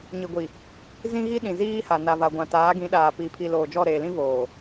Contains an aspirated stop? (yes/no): yes